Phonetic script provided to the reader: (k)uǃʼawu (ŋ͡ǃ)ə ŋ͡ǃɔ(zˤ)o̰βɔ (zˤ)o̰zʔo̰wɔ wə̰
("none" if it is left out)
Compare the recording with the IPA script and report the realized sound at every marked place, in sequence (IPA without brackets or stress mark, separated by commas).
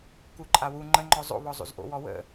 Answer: k, ŋ͡ǃ, zˤ, zˤ